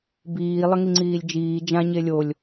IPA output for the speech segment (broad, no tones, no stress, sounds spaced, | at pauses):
b iː lˠ ə ŋ i ŋ͡ǀ iː lʲ d͡ʒ iː d͡ʒ ã ɲ e lʲ o lʲ